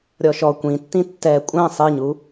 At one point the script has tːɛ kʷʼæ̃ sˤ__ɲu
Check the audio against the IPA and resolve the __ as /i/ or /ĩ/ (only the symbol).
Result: i